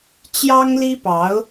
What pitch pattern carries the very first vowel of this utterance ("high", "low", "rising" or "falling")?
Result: high